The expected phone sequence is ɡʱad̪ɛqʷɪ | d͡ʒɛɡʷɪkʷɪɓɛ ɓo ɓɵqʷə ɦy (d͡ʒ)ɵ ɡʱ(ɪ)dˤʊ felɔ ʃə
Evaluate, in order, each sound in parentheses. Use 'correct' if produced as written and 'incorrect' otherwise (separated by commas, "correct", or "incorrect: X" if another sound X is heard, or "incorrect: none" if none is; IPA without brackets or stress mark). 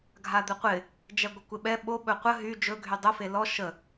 correct, incorrect: y